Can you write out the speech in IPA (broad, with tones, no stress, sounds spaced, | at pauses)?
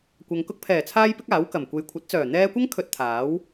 kʷ ɐ˨ ŋ k ʊ˧ k̚ pʰ ɛː˨˩ t͡sʰ aː˥ j p ɪ˥ k̚ aː˨˥ w k ɐ˨˩ m kʷ e˨ j kʷʰ ɐ˨˥ t̚ t͡s œː˨˩ n̪ ɛː˧ kʷ ɐ˥ ŋ kʰ ɵ˧ t̚ t̪ʰ aː˨˥ w